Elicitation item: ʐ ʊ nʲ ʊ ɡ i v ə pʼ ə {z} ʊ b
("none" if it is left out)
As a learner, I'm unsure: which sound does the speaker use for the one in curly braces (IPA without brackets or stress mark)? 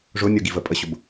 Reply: ɕ